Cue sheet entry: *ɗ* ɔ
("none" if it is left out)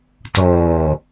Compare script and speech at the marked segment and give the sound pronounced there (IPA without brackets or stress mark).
t